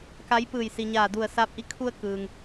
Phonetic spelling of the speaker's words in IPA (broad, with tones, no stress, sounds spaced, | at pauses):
k a˧˥ j p ɯː˧˩ j s i˩ ɲ aː˧˩ d u˧˩ ə̯ s aː˧˥ p̚ ʔ i˧˥ kʰ u˧ ə̯ k ɯː˩ ŋ